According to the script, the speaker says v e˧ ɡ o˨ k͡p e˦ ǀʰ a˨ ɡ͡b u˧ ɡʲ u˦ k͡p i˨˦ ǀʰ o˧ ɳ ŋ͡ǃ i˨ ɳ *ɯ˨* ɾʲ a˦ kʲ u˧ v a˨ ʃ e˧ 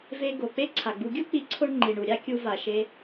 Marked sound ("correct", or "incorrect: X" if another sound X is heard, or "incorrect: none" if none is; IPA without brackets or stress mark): incorrect: u˨